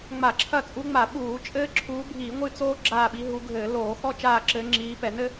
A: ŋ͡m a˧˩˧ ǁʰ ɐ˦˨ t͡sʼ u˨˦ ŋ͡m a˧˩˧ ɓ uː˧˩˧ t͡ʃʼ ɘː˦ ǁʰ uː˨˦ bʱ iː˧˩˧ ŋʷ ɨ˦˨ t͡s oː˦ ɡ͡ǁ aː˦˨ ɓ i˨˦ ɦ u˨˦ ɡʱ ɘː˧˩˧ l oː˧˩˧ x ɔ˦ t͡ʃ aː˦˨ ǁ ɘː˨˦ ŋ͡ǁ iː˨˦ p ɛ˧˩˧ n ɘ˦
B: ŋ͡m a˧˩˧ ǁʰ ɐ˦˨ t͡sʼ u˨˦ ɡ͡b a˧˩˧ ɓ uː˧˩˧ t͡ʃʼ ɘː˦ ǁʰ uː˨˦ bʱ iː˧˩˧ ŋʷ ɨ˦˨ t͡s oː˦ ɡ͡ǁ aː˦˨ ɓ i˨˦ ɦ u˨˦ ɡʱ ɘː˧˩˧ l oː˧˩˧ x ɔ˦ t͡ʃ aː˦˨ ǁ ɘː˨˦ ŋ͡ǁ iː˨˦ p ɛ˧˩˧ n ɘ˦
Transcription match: A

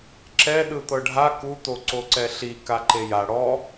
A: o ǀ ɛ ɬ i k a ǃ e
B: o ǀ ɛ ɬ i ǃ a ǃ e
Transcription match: A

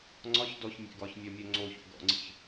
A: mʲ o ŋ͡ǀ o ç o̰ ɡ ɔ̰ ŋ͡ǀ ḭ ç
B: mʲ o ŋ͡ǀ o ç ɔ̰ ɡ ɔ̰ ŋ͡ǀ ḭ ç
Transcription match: A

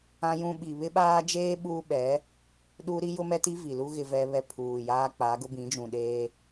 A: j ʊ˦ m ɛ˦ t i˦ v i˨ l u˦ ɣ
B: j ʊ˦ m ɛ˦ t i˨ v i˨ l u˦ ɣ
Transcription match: A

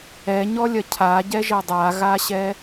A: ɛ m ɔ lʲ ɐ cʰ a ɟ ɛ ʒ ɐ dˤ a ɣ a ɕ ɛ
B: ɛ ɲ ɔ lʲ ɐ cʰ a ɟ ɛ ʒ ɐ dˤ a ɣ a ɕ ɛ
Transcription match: B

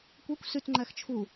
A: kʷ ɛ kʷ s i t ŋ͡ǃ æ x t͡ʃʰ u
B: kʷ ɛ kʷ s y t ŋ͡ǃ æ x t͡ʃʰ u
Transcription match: B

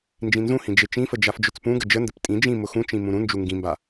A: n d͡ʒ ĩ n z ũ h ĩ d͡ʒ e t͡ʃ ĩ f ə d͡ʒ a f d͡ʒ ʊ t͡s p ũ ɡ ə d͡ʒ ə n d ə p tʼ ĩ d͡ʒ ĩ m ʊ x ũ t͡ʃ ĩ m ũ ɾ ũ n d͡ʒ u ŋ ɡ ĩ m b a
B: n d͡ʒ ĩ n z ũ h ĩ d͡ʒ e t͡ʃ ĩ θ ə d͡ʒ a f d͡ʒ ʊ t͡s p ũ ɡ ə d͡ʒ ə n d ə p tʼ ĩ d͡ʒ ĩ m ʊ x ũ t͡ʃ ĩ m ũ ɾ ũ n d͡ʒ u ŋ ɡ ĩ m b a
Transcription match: A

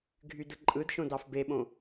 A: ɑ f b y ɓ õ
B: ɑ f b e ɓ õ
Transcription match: B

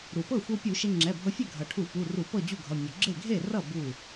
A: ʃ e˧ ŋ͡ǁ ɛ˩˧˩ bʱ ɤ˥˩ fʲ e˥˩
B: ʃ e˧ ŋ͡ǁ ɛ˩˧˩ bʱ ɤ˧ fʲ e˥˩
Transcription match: B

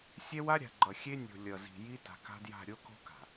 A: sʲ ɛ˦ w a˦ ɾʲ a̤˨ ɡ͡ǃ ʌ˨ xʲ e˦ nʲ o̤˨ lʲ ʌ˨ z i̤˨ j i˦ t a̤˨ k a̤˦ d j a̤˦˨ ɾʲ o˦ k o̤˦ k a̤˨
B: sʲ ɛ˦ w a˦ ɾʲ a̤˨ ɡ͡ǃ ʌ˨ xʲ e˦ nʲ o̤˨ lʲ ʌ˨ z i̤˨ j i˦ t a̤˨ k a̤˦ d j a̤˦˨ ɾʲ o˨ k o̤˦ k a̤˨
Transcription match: A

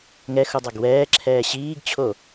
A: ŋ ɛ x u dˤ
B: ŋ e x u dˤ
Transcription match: A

